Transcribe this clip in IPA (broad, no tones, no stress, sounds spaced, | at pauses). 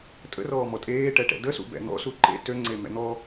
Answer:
tʼ ə̰ r ɔː m ɔ tʼ eː ʈ ɛ ʈ ɛ̰ d ə s ṵ b ɛ̰ n̪ ɔ̰ s u ǃ ḛ t ø ŋ͡ǀ e m ɛ̰ n̪ ɔ